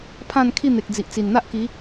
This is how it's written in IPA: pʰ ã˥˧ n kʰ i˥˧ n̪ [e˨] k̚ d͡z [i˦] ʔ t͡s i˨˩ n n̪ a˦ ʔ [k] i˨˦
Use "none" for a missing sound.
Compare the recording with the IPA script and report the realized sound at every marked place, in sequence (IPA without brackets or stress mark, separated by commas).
e˨, i˨, k